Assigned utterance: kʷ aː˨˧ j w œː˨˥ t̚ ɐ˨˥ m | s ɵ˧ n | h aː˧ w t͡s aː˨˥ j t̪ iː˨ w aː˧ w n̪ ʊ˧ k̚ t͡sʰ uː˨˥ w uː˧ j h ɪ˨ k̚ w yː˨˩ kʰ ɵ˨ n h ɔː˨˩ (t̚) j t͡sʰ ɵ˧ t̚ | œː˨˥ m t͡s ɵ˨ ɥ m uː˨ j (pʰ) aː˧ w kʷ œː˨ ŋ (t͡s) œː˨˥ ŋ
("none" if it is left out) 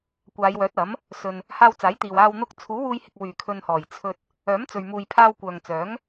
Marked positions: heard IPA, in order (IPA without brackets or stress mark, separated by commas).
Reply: none, pʰ, t͡s